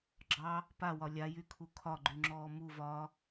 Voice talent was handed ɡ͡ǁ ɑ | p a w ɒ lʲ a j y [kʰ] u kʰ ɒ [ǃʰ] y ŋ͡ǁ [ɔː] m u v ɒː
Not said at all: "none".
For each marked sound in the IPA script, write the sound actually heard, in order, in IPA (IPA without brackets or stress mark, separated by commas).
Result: kʰ, ɡ͡ǃ, ɔː